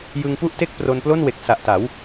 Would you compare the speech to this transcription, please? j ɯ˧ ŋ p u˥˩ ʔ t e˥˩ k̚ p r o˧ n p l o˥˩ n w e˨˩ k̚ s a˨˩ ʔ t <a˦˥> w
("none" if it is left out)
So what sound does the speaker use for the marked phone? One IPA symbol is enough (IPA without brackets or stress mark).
a˩˦